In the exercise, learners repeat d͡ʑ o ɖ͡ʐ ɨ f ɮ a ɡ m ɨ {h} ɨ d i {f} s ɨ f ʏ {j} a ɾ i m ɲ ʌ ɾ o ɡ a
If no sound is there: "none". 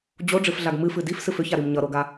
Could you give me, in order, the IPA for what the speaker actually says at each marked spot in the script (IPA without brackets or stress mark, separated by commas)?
f, f, ç